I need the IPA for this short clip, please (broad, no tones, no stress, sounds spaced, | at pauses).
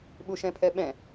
ɓ u ʃ ɛ̃ pʰ ɛ ɓ ɛ̃